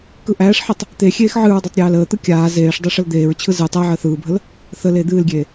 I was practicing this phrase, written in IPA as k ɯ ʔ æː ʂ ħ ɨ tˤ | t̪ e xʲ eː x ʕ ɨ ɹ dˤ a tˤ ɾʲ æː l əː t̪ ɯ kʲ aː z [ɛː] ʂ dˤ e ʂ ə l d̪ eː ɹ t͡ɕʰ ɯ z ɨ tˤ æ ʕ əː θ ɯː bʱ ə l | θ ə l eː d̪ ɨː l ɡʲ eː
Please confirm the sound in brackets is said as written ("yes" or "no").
no